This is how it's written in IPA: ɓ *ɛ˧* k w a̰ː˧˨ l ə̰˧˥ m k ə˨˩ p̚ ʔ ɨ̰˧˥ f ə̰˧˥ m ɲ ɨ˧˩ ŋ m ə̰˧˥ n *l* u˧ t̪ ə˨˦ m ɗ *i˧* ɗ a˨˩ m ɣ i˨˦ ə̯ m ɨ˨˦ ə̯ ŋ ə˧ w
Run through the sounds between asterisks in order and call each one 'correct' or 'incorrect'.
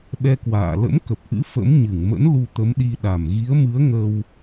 correct, correct, correct

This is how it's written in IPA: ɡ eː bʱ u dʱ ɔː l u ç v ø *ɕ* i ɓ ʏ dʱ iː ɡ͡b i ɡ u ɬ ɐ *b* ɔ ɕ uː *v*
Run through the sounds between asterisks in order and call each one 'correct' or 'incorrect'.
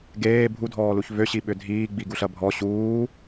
correct, incorrect: bʱ, incorrect: none

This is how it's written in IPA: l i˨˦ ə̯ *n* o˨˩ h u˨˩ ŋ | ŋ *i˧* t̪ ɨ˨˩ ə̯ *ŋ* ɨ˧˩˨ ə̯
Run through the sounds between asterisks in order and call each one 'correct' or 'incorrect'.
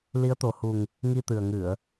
incorrect: t̪, correct, correct

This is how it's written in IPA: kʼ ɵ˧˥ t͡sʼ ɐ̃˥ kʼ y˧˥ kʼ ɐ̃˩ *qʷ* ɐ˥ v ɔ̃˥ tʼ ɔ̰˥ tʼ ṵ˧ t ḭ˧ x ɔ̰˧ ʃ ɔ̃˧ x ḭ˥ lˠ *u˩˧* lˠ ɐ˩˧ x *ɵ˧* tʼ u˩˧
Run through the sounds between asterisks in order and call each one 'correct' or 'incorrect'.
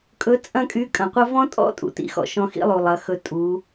correct, incorrect: u˩, correct

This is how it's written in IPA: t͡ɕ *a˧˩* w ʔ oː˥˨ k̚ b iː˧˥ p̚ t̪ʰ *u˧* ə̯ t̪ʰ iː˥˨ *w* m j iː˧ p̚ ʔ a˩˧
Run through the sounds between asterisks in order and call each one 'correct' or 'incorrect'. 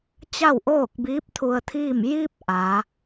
incorrect: a˥˨, correct, incorrect: none

